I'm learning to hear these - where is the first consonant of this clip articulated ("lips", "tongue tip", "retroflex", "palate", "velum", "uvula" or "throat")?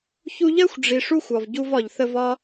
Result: palate